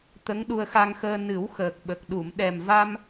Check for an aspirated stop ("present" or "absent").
absent